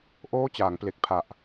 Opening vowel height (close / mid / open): mid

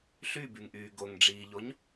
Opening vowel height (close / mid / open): close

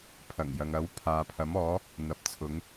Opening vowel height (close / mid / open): open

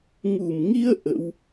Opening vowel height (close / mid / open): close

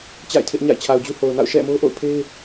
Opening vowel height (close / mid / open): open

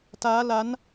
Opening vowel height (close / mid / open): open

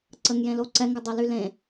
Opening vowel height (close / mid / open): mid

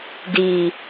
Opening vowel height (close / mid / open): close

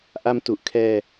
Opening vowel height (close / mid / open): open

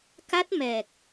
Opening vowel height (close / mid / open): open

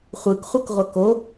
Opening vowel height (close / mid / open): close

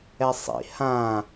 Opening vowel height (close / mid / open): mid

